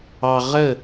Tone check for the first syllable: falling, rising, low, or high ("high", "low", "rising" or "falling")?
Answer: high